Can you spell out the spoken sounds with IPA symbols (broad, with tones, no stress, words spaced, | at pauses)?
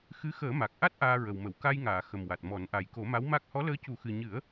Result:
xɨ˧˥ xəː˨˩˦ma˨˩k̚ʔa˦˥t̚ ʔaː˧ɹə˨˩w mə˨˩˨w ka˧jŋaː˨˩˨ xə˨˩mwa˨˩t̚mɔ˨˩˦nʔa˨˩j ko˨˩˦ma˧˥w ma˦˥k̚ hɔ˧˥ləː˧˥cu˨˩˦xɨ˨˩ ɲɨ˨˩˦ə̯